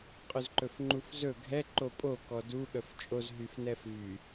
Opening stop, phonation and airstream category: ejective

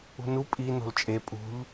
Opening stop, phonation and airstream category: ejective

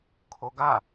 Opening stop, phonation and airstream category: aspirated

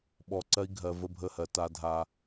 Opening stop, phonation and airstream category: implosive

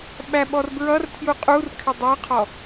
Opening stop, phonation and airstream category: implosive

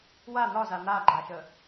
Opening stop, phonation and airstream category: click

